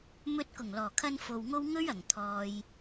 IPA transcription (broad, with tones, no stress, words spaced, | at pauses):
mɵ˧t̚kʊ˨˩ŋlɔː˨˩kʰɐ˧n fo˨wŋo˥w ŋɵ˥ɥɐ˨˩ŋ t̪ʰɔː˨j